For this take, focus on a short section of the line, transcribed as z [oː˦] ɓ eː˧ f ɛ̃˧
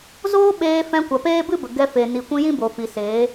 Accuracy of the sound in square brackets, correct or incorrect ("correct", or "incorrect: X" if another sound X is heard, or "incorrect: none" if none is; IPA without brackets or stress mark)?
correct